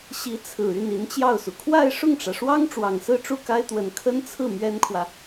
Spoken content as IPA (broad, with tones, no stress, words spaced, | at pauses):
ɕi˧˥ t͡sʰɹ̩˨˩y˥˩n i˧˥nt͡ɕjɑ˥˩ʊ̯su˩ kʰwa˥˧ɪ̯ʂʊ˥˩ŋʈ͡ʂä˩ʂwɑ˥ŋ ʈ͡ʂwɑ˨˩ŋsɹ̩˥˧ʈ͡ʂu˥˩ ka˥ɪ̯t̪wə˨˩n kʰə˥nt͡sʰɹ̩˥˩ mɥɛ˥nkʰwä˨